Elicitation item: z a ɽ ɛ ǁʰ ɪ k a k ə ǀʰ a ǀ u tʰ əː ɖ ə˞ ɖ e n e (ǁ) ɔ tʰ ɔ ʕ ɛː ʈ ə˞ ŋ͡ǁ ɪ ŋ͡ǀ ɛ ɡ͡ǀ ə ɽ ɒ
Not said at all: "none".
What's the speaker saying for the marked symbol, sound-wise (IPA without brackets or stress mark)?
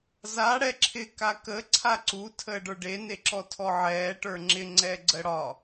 ǁ